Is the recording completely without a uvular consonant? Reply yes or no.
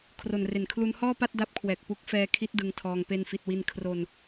yes